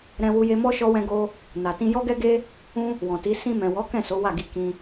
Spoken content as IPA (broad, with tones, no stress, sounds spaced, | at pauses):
ɾ ɛ̃˧ w u˧ j e˧ m ɔ˦ ʃ ɔ˦ w ɛ̃˦ ɡ o˦ | n a˨ t ĩ˧ j ɔ˦ ɡ ɛ˦ ɡ e˦ | ũ˦ | w ɔ̃˨ t i˨˦ s ĩ˧ m ɛ̃˨ w ɔ˨˦ k ɛ̃˦˨ s o˨˦ w a˦˨ ɡ i˧ k ĩ˧